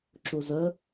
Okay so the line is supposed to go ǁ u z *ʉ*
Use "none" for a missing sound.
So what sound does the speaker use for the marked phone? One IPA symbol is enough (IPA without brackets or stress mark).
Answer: ə